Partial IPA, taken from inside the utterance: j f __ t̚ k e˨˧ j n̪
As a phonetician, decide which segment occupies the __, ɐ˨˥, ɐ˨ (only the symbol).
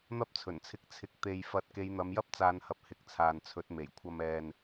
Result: ɐ˨˥